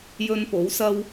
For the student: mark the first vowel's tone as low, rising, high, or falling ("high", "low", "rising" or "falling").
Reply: high